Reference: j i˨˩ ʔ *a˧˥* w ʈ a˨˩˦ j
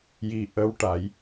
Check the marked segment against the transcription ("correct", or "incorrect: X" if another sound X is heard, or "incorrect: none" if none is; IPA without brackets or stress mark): incorrect: ə˧˥